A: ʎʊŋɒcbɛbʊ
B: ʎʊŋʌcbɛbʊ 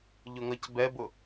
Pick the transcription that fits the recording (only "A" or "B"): B